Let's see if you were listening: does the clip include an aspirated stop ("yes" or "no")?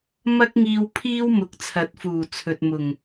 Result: yes